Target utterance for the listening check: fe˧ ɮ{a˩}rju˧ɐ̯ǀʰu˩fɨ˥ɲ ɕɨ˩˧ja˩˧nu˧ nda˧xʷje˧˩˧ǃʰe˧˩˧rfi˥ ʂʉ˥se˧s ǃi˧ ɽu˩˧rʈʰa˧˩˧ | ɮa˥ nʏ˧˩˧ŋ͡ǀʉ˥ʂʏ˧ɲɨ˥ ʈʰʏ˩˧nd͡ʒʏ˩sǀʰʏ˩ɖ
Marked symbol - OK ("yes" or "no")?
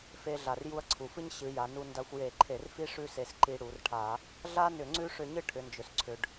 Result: yes